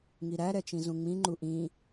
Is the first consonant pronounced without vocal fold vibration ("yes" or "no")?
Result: no